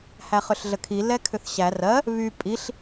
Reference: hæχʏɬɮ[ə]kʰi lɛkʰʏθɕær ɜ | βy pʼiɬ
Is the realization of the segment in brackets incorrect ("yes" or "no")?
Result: no